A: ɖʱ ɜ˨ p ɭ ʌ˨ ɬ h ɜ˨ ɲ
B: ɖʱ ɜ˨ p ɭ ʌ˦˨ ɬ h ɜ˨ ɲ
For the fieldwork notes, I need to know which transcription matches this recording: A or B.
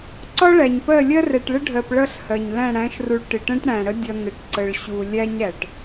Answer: B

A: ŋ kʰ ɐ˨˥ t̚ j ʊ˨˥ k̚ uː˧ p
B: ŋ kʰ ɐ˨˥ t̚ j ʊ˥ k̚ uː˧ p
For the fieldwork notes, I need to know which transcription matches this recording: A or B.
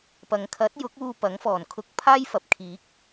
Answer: A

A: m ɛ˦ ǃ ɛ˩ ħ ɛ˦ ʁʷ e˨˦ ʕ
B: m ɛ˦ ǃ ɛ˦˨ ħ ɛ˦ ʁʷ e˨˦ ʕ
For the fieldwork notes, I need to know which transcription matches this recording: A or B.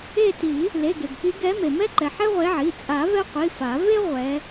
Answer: A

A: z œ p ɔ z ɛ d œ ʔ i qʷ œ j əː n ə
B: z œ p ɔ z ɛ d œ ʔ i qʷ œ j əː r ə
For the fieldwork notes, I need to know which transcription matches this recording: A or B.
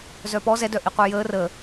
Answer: B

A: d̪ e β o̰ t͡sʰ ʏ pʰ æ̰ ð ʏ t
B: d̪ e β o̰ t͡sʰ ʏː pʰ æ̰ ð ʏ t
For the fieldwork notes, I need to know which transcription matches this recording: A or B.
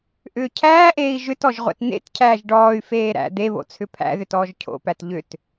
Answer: A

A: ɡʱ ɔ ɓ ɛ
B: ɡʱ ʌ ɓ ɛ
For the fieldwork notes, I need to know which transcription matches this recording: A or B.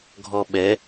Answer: A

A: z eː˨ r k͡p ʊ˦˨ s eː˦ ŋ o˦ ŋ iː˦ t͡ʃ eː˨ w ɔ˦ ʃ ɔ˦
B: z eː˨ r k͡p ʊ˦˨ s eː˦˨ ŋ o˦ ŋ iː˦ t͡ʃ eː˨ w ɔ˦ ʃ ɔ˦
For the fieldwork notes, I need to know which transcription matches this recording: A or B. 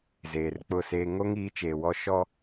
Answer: A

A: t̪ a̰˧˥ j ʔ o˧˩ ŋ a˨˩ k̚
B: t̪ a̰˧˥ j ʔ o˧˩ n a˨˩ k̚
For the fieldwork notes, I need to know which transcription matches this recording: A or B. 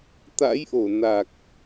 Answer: B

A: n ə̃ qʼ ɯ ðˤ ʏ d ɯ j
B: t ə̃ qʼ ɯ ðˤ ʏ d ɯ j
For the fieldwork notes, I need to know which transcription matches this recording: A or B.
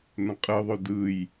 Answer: A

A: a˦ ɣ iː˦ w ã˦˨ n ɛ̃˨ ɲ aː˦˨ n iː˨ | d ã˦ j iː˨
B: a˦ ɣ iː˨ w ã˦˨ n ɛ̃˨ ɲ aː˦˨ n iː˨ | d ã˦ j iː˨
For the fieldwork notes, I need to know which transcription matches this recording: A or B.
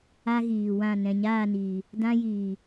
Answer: B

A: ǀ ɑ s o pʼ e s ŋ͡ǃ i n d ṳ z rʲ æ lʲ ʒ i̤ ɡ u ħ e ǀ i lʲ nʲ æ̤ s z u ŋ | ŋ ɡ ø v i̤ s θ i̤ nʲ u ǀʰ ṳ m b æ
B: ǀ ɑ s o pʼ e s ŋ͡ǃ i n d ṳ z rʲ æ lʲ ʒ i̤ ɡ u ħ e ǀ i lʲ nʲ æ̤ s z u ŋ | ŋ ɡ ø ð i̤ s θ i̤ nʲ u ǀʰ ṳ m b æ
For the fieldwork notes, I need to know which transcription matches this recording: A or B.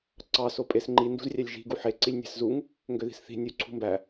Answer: B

